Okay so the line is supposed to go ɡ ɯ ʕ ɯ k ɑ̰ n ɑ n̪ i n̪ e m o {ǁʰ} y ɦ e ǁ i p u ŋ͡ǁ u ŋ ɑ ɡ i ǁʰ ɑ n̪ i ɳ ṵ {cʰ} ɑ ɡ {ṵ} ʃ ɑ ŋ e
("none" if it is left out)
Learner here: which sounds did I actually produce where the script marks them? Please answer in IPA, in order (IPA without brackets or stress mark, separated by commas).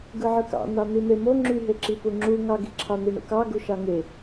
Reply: ŋ͡ǁ, k, u